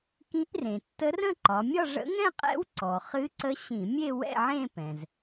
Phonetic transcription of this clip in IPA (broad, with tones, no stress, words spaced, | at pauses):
kĩ˧˥ʔrẽ˩ tːə˧˥rə̃˥˧ǃɒ˩˧ mʲɒ˥˧ʐə̰˧˥ ŋɛ̃˥˧qʼɛ̰˧˥wǀɔ˩ χɨ˧˥ǀə˧˥ɕĩ˧˩˧mʲe˥˧ wɛ̰˥˧ʕẽ˥˧pɛ̃˩z